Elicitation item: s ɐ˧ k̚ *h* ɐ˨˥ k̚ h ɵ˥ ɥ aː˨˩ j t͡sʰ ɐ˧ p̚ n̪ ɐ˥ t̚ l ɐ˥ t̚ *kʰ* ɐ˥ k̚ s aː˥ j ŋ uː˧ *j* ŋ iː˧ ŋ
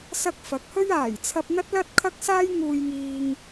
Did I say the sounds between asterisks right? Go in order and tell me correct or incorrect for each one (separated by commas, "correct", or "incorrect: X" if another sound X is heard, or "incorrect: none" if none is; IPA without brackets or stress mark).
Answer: incorrect: f, correct, correct